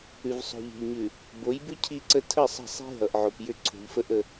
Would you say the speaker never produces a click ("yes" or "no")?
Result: no